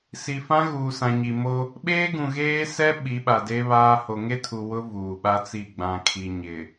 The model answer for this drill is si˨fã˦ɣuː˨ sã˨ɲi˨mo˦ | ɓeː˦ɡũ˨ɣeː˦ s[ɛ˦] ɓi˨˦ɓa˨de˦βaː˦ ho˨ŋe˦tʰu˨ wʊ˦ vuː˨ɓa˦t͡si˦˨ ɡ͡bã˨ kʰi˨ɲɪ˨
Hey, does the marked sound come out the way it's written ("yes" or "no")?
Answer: yes